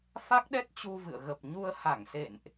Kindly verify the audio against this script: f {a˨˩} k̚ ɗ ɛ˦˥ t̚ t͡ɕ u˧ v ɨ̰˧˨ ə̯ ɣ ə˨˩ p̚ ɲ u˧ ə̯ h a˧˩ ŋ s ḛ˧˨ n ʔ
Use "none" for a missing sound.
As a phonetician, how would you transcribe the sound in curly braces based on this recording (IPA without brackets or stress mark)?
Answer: a˦˥